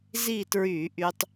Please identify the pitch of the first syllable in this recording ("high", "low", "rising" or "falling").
falling